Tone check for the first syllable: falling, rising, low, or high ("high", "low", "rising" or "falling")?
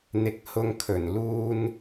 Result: low